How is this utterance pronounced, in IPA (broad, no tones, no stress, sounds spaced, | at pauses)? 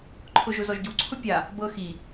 ǃʰ ʊ ʒ ʊ z ɔ ʒ ɟ u ǀʰ ʊ pʲ a | b ɤ x i